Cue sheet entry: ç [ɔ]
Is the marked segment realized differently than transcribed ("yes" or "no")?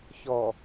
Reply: no